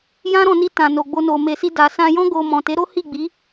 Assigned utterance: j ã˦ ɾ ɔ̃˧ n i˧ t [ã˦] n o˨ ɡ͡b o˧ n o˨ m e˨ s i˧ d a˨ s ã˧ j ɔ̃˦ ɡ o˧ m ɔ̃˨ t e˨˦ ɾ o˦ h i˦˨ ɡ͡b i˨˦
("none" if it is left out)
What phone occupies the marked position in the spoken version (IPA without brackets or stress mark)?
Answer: ã˨